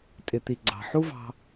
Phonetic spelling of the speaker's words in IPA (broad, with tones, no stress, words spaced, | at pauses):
tʼɪ˨t̪i˨ɡ͡ǀɑ̤˨ ħu˦vɑ̤˧